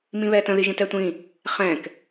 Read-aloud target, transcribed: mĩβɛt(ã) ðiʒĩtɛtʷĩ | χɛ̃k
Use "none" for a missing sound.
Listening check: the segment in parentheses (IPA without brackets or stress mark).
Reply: ə̃